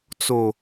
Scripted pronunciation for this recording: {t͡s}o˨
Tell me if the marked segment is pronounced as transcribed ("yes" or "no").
yes